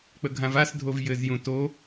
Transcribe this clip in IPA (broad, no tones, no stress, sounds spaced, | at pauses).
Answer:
k͡p ə ɡʱ ã v a s dʱ o v j ɘ z j ũ t o